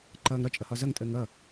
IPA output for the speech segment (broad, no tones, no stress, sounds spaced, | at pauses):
ǃ ʌː ŋ ɾ ɒ t͡ʃʼ ʌ h ɒ z ʌ ŋ tʼ əː ŋ ʌ